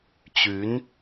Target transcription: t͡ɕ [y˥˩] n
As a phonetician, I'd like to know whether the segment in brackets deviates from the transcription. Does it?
yes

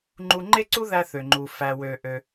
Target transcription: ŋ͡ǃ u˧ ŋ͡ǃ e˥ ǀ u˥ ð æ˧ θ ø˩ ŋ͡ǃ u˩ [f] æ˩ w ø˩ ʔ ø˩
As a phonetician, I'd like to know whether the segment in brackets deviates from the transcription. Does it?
no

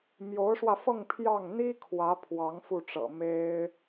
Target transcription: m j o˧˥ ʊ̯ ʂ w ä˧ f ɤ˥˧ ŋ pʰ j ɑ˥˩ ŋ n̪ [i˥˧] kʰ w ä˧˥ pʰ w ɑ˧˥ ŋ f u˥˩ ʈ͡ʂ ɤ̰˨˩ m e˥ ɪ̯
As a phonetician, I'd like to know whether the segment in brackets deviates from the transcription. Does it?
yes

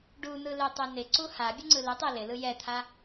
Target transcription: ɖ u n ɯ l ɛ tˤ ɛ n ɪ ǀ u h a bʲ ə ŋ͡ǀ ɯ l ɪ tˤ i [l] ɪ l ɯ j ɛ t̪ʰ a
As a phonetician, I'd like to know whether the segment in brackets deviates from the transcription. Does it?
no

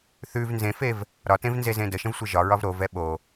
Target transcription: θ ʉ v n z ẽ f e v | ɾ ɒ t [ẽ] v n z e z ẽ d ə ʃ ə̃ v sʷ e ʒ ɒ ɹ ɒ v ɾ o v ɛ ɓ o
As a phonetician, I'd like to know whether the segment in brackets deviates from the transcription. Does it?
no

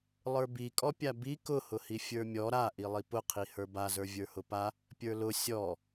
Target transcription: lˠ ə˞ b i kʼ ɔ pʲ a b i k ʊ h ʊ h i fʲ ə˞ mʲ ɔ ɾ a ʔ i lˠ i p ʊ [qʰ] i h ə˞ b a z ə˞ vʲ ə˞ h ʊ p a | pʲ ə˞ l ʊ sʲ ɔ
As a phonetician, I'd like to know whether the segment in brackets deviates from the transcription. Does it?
no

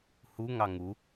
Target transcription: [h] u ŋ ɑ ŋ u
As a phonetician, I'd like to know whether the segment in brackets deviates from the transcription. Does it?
no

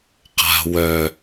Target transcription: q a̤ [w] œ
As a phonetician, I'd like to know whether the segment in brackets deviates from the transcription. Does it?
no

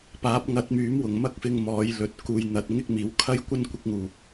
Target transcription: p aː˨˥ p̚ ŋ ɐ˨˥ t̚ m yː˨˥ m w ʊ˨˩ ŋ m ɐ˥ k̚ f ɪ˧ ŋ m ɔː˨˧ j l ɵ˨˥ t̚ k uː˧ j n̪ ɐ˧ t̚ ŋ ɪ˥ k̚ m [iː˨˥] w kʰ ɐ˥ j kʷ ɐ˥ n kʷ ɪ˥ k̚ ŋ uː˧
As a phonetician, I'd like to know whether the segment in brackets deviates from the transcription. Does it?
no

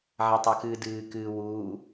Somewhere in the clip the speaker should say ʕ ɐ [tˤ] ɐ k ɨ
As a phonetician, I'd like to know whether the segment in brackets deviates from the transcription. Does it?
no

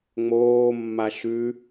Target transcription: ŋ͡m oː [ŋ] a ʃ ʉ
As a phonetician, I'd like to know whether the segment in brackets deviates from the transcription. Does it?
yes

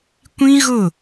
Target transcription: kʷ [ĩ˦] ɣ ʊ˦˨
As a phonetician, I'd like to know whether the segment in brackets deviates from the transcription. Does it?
no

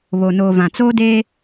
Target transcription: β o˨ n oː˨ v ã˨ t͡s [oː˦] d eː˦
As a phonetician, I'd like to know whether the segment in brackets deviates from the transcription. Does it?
no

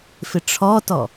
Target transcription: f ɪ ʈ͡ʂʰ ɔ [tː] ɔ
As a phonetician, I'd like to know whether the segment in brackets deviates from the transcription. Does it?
yes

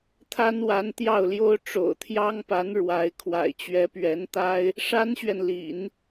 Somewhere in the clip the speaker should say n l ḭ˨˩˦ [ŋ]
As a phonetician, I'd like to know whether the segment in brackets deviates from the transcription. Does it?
yes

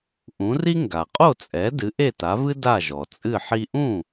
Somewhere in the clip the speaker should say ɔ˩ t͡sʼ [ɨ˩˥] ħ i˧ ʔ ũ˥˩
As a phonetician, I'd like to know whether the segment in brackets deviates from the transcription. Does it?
yes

